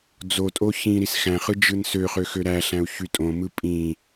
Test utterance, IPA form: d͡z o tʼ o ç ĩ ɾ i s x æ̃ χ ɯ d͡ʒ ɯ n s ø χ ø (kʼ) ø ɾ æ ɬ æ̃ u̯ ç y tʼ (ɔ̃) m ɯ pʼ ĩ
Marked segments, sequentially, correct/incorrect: incorrect: x, incorrect: õ

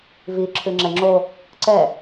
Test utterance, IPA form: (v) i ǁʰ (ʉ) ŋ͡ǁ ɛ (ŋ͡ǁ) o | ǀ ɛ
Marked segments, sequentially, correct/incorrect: correct, correct, correct

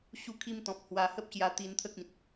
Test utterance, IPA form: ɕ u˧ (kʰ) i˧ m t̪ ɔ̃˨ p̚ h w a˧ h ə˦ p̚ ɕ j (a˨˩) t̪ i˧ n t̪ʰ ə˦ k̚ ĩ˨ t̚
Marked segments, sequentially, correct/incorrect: correct, incorrect: a˧

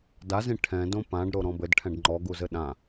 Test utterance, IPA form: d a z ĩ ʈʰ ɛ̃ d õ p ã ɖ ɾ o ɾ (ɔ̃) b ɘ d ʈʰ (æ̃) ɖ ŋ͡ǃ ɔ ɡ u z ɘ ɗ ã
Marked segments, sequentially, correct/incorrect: correct, incorrect: ɛ̃

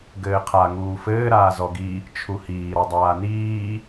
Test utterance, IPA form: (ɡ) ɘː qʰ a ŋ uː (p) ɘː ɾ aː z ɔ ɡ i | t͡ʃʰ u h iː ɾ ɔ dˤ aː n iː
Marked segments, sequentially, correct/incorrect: correct, incorrect: f

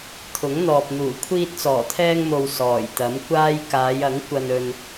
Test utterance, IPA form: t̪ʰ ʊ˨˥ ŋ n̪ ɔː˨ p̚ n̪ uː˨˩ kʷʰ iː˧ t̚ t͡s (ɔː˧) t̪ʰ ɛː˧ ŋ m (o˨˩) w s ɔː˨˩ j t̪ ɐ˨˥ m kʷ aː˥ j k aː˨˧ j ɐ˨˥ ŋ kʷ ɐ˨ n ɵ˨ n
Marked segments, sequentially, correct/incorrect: incorrect: ɔː˨˩, incorrect: o˨

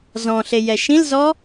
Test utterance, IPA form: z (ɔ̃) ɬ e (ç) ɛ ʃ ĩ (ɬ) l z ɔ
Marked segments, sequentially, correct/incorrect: correct, incorrect: j, incorrect: none

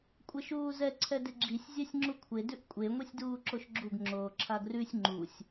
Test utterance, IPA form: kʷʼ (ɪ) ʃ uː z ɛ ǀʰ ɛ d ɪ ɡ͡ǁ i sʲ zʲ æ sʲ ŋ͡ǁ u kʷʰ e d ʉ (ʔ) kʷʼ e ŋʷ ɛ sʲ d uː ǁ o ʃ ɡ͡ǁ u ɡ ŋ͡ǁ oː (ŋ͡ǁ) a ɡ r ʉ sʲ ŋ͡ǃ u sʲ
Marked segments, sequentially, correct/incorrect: correct, correct, incorrect: ǁʰ

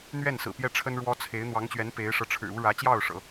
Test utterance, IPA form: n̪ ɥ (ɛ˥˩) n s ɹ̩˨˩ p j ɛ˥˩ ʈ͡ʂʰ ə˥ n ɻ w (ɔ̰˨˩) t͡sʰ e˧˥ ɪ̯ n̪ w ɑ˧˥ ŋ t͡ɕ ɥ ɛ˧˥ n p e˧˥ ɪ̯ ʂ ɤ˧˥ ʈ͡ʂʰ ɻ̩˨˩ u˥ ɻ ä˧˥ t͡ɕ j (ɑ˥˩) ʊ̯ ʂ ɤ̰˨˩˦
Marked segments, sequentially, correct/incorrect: correct, incorrect: ɔ˥, correct

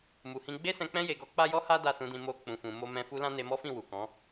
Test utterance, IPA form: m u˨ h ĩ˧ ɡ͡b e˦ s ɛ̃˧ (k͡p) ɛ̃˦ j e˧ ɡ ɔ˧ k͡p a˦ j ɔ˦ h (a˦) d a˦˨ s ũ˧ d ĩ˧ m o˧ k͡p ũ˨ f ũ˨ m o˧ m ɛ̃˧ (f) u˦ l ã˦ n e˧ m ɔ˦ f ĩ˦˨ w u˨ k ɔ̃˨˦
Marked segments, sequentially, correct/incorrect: correct, correct, correct

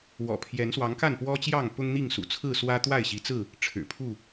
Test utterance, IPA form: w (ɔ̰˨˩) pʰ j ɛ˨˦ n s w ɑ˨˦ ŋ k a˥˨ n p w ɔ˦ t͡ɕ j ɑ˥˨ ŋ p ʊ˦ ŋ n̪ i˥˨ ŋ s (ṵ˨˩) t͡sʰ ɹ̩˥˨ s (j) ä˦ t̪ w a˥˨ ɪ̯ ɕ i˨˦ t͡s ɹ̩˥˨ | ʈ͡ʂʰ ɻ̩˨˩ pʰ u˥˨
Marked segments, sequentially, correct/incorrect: correct, correct, incorrect: w

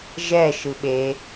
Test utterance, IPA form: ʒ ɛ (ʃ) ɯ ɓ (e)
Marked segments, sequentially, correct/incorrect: correct, correct

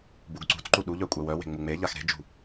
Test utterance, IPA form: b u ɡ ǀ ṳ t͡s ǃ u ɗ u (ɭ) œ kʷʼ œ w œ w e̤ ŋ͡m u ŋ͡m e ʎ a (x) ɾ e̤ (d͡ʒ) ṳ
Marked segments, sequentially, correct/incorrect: incorrect: ʎ, correct, correct

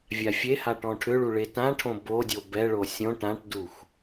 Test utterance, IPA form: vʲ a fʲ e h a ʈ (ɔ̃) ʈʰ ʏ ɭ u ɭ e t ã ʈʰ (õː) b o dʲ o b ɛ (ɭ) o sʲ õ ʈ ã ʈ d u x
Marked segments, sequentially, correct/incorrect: correct, incorrect: õ, correct

